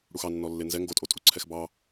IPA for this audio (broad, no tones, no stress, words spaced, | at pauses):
ɽuxɑ nːɔlːenzɛ ŋɡotʼo tʼuǀʰɛxbɑ